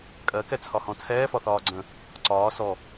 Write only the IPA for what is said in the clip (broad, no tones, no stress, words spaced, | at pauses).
kʼɜkɛt͡sʰɒ hɔ̃t͡sʰɛːfɒθɒː ɡ͡ǀə̃ | ǀɒː sɔ